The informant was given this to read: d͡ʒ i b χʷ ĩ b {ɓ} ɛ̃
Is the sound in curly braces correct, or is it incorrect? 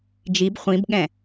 incorrect